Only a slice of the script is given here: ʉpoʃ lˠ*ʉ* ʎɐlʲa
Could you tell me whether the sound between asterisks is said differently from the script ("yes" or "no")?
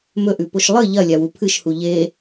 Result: yes